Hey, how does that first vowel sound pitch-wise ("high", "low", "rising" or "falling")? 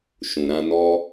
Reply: low